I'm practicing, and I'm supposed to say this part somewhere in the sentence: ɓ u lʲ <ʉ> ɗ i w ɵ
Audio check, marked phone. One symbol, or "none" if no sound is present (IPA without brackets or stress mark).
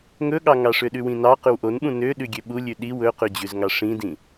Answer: ʉ